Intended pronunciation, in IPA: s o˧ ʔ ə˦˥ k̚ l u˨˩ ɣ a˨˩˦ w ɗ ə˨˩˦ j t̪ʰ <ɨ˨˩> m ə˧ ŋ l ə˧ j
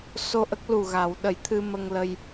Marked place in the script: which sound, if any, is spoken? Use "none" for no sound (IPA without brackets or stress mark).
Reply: ɨ˧